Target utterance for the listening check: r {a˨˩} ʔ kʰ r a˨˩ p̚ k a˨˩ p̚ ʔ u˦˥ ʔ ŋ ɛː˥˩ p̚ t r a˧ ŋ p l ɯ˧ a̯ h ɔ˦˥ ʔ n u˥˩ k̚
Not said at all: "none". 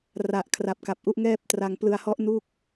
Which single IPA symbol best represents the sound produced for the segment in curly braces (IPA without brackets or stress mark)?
a˨˩